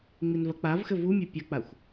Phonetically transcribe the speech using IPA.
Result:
ŋ͡m i n v ɐ k͡p a v x ɘ v u mʲ ɛ pʲ ɐ k͡p a xʷ

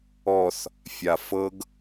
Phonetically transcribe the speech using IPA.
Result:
ɔ θ | fʲ a f ɤ ɡ

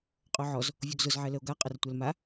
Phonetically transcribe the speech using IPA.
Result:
qʼ o ʕ ɔ z | vʲ o ɡ z ʊ z ʕ ɛ l ə o̯ ɡ a qʼ ə r tʷ ɛ l m a

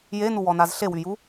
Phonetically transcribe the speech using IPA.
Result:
j e n u w ɔ n a z ɬ e w y j u

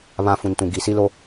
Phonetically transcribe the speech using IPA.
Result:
β ã˦ f ũ˨ n t ũ˨ ɡ i˨˦ s i˦ l o˦

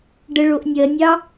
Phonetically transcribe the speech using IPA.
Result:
ɖ ə ɭ o ʔ nʲ ɜ nʲ ɑ

